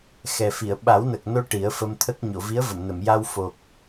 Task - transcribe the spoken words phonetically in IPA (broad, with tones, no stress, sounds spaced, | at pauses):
x ɛ˨˩ f i˨˩˨ ə̯ ɓ a˨˩˦ w n ə˨˩ k̚ n o˧ ʈ i˨˩˦ ə̯ f ə˧ m t̪ʰ ə˦˥ k̚ ɲ o˨˩˨ v i˧˥ ə̯ v ə˨˩˨ m n ə˨˩˨ m j a˧ w f o˨˩ k̚